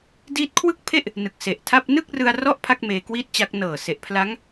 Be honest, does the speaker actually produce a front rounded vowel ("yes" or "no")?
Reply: no